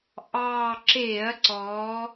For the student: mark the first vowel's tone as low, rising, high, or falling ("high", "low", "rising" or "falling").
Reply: low